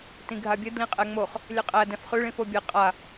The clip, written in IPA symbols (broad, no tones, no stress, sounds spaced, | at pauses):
t ĩ ɡʱ a bʲ ɘ d l ĩ qʼ ɛ ŋ͡m o χ | lʲ ɛ qʼ æ d ɛ̃ f χ ʉ ɭ ĩ f o bʲ ɛ qʼ a